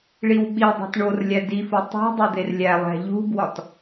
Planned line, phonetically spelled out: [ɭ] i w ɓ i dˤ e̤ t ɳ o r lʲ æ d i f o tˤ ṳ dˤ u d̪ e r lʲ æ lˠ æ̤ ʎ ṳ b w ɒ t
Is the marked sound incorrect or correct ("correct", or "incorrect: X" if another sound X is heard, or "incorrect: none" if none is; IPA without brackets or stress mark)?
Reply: correct